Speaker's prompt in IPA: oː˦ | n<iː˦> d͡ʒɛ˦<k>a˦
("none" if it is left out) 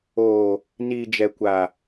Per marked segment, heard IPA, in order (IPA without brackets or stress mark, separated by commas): iː˦, kʷ